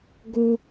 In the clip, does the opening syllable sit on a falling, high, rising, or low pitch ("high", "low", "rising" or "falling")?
low